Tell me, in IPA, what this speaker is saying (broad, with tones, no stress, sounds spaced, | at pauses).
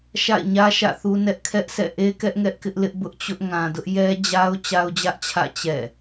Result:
ʃ a̰˦˨ ɪ̯ ɲ ä˦ ʃ ä̰˦˨ θ u˦ n ɛ˦ ʔ kʰ ɛ˦ ʔ sʰ ɛ̰˦˨ ʔ e˦ k ɛ˦ ʔ ŋ ɛ˦ ʔ k ɪ˦ ʔ l ɪ˦ ʔ b ʊ˦ ʔ t͡ɕ ʊ˦ ʔ ŋ ã˨ d ʊ˦ ʔ j ɛ˦ d͡ʑ a˦ ʊ̯ t͡ɕ a˦ ʊ̯ d͡ʑ ä˦ ʔ t͡ɕʰ ä̰˦˨ t͡ɕ ɛ̰˦˨